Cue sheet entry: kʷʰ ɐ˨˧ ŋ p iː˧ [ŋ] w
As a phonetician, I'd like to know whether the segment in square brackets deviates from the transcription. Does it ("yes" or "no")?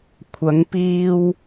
yes